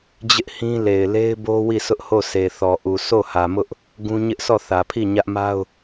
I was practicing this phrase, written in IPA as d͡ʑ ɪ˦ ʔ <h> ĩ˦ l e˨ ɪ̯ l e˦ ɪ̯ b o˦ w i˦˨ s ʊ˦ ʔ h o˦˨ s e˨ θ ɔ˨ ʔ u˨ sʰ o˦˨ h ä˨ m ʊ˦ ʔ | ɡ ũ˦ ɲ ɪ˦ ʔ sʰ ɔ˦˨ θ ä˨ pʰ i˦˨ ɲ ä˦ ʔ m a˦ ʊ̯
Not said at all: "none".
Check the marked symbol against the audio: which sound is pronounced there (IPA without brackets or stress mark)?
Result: h